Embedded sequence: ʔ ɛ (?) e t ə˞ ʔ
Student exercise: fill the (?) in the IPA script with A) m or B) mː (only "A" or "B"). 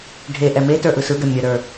A